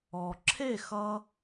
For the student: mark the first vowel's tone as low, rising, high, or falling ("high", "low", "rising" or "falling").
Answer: low